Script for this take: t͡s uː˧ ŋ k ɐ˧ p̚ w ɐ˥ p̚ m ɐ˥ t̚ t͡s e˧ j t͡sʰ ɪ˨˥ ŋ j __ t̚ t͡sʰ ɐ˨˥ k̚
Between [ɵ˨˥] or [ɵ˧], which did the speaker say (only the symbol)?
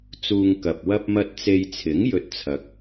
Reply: ɵ˧